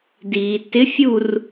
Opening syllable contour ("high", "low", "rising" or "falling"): low